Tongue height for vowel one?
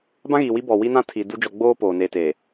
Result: low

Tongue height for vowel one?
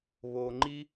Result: mid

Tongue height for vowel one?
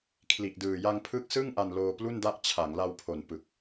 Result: high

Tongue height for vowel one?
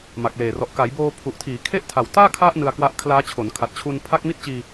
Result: low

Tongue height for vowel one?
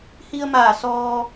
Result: high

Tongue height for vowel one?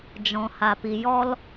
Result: mid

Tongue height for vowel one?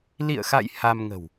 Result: high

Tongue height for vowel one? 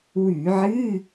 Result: high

